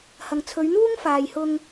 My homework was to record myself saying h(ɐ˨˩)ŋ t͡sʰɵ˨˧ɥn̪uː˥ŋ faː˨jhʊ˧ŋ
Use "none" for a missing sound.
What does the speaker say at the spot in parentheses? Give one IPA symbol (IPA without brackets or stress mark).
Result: ɐ˨